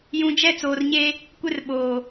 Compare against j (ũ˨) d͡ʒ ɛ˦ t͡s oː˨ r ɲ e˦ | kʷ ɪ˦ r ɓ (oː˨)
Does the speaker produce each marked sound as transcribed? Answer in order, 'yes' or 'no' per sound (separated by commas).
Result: yes, yes